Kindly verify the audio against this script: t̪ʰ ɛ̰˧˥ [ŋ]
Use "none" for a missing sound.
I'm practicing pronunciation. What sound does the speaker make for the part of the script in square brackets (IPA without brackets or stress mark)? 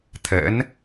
n